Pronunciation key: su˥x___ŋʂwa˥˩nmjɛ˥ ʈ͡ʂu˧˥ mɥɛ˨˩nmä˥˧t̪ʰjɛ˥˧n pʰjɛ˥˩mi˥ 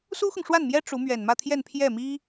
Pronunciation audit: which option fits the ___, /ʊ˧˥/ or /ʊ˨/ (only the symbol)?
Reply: ʊ˨